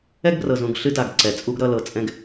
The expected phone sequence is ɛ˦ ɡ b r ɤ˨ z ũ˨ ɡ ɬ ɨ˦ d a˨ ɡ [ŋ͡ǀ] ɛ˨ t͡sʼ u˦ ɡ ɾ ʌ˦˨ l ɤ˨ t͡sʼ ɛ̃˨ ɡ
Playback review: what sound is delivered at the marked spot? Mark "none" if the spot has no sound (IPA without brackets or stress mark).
ǀ